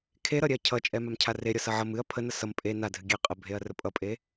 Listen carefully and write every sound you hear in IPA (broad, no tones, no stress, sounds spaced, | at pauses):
kʰ e ɾ ʌ ɾʲ ɛ ɐ̯ cʰ ʌ t͡ʃʼ ɛ m a m cʰ a r e ɾʲ ʌ s ʌ ʕ ʌ m ɨ ɐ̯ pʰ ə n ʌ s ʌ m pʼ e n a dʱ ɨ ɡʲ ɛ qʼ ə bʱ e ɐ̯ r ə pʼ ʌ pʼ e